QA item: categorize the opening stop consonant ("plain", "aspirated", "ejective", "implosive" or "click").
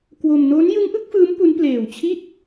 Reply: plain